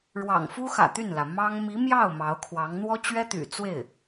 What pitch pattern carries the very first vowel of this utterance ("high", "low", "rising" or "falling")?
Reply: low